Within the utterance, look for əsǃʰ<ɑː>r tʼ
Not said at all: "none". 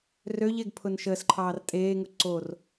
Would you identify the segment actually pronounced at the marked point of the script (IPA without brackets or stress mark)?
ɑː